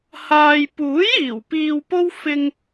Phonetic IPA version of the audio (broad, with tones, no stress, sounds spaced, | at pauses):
h aː˧ j p uː˨˥ j iː˨˩ w p iː˧ w p o˥ w f ɪ˧ ŋ